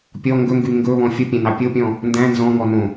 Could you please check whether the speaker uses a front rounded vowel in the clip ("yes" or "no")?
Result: yes